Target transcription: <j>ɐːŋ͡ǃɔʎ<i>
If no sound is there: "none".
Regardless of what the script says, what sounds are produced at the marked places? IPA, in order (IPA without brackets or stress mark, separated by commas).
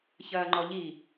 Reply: ç, i